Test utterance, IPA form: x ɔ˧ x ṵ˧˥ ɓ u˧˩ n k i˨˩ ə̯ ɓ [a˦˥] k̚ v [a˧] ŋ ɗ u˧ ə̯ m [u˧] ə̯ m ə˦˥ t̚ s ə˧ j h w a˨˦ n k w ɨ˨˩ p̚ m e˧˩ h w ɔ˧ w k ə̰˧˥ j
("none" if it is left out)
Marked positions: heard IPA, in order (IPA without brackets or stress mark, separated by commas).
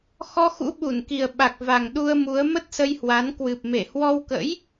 a˨˩, a˨˩, u˨˦